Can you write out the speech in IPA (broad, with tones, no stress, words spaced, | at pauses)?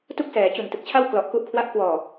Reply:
tu˥˩k̚sɛː˩˦ t͡ɕu˨˩ntɯ˨˩k̚t͡ɕʰa˥˩w klɔ˨˩ʔku˦˥ʔkʰwa˦˥ʔ kwɔː˨˩